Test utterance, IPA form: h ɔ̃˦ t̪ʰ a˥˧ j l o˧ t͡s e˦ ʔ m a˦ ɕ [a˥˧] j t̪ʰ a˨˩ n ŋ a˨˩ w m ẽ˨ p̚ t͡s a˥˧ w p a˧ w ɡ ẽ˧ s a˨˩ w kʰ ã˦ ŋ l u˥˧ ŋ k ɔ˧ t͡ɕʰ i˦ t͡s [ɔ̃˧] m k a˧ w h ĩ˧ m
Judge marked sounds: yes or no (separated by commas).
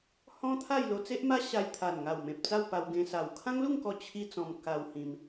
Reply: no, yes